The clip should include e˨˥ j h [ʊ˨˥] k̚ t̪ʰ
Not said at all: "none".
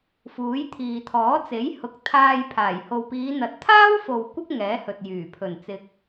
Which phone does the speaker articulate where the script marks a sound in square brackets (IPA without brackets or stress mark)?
ʊ˨˥